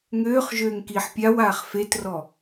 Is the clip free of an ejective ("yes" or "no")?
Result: yes